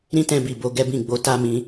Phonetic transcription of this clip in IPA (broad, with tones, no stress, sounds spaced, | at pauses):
ɾ ĩ˦ t ɛ̃˧ b i˨ b o˧ ɡ ɛ˦ b ĩ˦˨ ɡ͡b o˧ t a˦ m ĩ˧